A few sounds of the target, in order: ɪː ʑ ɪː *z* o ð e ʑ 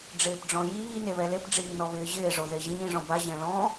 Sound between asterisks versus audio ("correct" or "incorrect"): incorrect